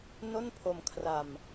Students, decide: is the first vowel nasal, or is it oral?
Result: oral